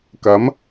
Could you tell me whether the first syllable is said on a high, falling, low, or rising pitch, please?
rising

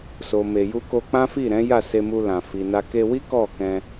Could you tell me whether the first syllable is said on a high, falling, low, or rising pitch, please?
low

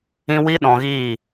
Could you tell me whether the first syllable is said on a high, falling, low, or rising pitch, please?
high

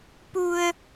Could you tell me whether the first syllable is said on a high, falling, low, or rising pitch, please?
low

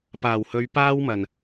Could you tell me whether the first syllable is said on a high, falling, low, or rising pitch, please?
low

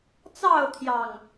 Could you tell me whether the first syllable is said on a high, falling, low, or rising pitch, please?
falling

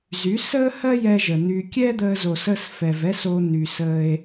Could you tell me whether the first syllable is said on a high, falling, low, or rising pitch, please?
rising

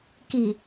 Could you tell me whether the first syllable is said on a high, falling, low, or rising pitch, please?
low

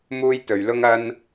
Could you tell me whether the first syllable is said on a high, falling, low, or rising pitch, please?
high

